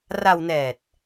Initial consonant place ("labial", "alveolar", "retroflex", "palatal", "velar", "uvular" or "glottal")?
alveolar